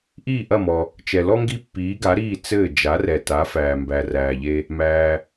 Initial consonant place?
glottal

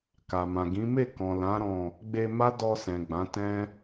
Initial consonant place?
velar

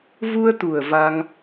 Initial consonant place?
labial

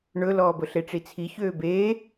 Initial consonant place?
retroflex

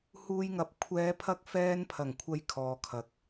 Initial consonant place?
glottal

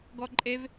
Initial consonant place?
velar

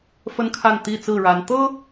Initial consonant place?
labial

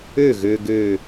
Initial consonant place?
velar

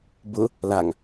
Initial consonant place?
labial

